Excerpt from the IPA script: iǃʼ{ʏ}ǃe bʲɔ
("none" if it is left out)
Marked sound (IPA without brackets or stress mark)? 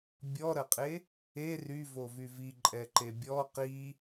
ɛ